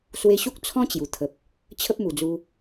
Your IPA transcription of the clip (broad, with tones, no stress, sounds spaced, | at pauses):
s w e˧ ɕ u˦ k̚ t͡sʰ ɔ̃˦ t͡ɕ j u˨˩ t̪ʰ ə˨ p̚ | t͡ɕʰ ə˦ p̚ m u˨˩ d͡z u˧